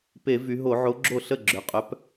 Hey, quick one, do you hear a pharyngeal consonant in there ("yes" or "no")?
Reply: yes